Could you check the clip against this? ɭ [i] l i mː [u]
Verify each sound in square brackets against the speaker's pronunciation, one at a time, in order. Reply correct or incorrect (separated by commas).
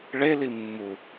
incorrect, correct